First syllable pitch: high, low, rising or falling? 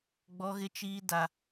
high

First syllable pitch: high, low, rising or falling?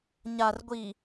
low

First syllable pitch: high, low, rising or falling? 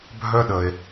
high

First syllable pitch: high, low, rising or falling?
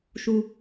high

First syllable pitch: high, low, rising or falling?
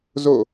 falling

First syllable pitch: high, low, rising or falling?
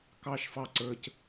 high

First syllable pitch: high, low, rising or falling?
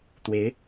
rising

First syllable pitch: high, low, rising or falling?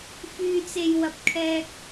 low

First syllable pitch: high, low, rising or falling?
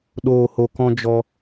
low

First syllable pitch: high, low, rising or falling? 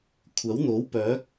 rising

